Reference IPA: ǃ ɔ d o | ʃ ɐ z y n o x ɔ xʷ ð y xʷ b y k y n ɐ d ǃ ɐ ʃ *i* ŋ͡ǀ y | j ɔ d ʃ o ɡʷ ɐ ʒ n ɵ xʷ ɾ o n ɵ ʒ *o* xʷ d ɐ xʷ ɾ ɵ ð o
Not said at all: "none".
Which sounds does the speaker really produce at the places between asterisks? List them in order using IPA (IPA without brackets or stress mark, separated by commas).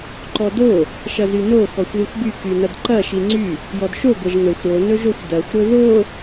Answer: i, o